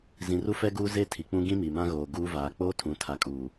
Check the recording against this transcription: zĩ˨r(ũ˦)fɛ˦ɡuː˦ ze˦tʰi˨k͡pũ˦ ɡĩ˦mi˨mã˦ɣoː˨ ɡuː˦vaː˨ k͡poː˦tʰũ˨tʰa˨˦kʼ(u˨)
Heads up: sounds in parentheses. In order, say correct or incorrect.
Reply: incorrect: u˦, incorrect: uː˨

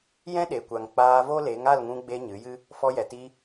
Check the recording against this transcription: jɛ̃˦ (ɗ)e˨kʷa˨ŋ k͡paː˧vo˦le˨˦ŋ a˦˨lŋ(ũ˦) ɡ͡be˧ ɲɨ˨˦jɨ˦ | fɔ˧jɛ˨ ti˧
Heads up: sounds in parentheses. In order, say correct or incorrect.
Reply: correct, incorrect: ũ˧

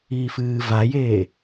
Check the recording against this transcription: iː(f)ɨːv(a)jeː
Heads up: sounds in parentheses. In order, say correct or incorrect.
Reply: correct, correct

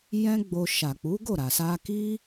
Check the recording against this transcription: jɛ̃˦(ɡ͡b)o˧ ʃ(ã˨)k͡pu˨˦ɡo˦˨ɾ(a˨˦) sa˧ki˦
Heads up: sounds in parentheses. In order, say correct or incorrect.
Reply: correct, incorrect: a˨, incorrect: a˨

